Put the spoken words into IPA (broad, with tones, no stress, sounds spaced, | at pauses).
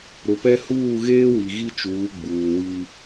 ɾ ʊ˨ p ɛ˦ h uː˦˨ ɣ eː˦ w i˨ ɣ i˦ t͡ʃ uː˨˦ ɡ͡b uː˨ w i˦